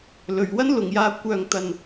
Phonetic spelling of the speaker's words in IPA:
l ɵ˨˩ ɥ w ɐ˥ n l ʊ˨˩ ŋ j aː˨ kʷ œː˨ ŋ t̪ ɐ˨ n

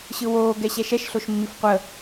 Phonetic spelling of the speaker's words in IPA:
ɕ ɯ w oː ɡ ɛ ɕ ɛ ʃ ɛ ʃ ɬ o ʃ mː i f qʷ ə

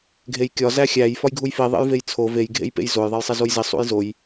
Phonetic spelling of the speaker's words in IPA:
ɡʱ e j kʲ ɒ z æ xʲ æ j f ɒ j ɡʱ u j f i ðˤ ḛ j v e j t͡sʰ o v e j ɡʱ ḛ j p ḛ j z o j ðˤ e j sˤ i z o j z i sˤ ṵ j z o j

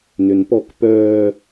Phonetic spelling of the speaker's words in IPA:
n ø n p ɔ k p œː

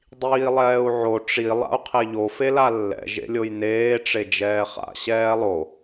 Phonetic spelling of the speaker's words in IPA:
dˤ iː lˠ ɛː u̯ ʕ o ʈ͡ʂ i lˠ a̰ u̯ qʰ e ʎ o f e l a lː ɛ̰ ʒ ḛ lʲ o j n eː ʈ͡ʂ e d͡ʒ ɛː χ a̰ ɕ ɛː lˠ o

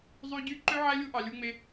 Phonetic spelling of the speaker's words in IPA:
zˤ y˦ ɟ y˦ ǃ ø˦ ʕ æ˦ lʲ u˦ ʔ ɑ˧ lʲ u˦ ŋ͡m e˦

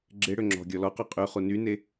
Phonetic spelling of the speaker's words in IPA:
ɡ͡ǁ e ɽ ø ŋ͡ǁ ɔ̤ ɡʲ ɔ l ɔ q œ qʼ y χ u n y n e

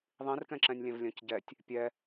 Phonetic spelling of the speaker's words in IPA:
ðˤ ĩ r k ɛ̃ ǁ ɛ̃ nʲ lʲ ɛ̃ v lʲ œ̃ c ɟ ɛ tʲ | pʲ ɛ

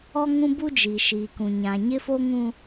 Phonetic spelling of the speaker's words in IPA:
ɔ˦ ŋ ũ˦ b u˦ d͡ʒ iː˨ ʃ iː˨ k ũ˨ ɲ ã˨ ɲ ɪ˦ f o˦ ŋ ũ˦

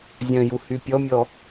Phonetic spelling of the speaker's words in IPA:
zʲ œ̃ j u h y pʲ ɔ mʲ ɔ

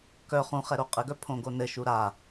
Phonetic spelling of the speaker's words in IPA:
k œ χ ũ χ ɛ ɾ o qʼ ɘ ɡ œ pʰ õ ɡ o n ɘ ʃ u ɾ a

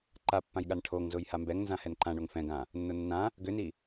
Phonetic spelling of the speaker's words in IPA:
ǃ a pː ã j ɠ a n ʈʰ o ŋ z ʊ j h a m b ɛ ŋ n z ã h ɛ n ǃ ã ɳ o ŋ f ɛ̃ ɡ ã | nː ʊ nː ã | ɡ ʏ n i

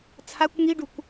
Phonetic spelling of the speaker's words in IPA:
t͡sʰ a kʷ ŋ i ɖ u kʷ

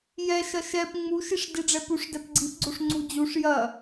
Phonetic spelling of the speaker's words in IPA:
j ɛ ʃ ɐ ʃ ɛ p ŋ͡m u ʃ i ʂ d i ɖ͡ʐ ɛ p u ʂ d ɛ p ɡ͡ǀ i p ɡ͡ǀ o ʂ ŋ͡ǀ u d͡ʑ u ʂ j ɐ

